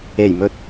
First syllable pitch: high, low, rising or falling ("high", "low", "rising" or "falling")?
low